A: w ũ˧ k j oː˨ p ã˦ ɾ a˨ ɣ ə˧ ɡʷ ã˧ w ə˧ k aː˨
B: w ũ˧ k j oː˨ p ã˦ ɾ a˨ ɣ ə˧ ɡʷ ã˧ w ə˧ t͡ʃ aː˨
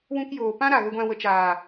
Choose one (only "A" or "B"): B